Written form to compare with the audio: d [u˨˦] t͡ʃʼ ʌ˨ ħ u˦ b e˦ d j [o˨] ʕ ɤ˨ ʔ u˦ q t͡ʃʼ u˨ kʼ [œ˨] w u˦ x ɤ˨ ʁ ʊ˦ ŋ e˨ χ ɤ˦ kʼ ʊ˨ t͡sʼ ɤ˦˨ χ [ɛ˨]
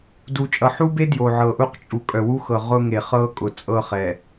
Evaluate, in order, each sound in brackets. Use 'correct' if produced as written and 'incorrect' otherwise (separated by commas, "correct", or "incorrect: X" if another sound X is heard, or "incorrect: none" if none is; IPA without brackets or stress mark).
incorrect: u˨, correct, correct, correct